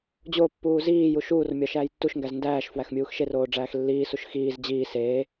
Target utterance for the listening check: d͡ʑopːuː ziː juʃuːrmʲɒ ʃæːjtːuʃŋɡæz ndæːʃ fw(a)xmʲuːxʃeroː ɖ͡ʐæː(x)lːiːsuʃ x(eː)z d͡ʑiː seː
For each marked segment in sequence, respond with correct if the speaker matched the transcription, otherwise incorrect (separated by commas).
incorrect, correct, incorrect